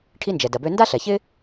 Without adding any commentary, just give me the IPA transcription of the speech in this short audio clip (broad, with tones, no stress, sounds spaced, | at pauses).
ʈʰ i˦ n d͡ʒ ɛ˩ d ɐ˩ b ø˦ n d a˥ ɬ ɛ˩ ç ɪ˥